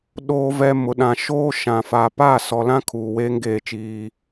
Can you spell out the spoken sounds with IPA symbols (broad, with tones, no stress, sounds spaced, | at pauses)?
ɗ oː˨ v ɛ˨ m ʊ˨ ɗ ã˨ ʃ oː˦ ʃ ã˨ f a˨ p aː˦˨ s ɔ˨ l ã˦ kʰ uː˨ w eː˦ ŋ ɡ eː˦˨ t͡ʃ iː˦